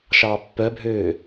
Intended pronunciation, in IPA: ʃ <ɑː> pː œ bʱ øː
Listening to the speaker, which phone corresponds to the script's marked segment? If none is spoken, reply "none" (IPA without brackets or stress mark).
ɑː